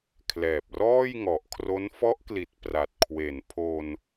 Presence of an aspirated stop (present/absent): present